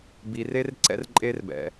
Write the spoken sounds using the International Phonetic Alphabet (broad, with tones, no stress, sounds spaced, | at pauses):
b i˧ r e˦ r ǀ ɛ̰˦ r ǃʼ e˦ r b ɛ̰˧